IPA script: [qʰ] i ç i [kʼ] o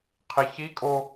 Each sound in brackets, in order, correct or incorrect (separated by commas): correct, correct